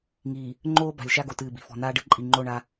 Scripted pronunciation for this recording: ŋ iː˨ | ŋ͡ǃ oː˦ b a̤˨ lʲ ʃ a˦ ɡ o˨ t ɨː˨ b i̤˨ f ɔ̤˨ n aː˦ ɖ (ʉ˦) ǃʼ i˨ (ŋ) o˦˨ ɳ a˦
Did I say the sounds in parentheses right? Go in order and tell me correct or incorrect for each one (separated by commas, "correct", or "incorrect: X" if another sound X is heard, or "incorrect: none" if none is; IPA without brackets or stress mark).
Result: incorrect: ɨ˦, incorrect: ŋ͡ǃ